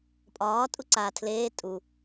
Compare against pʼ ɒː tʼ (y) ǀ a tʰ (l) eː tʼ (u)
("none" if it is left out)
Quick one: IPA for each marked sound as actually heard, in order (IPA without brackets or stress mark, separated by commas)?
u, l, u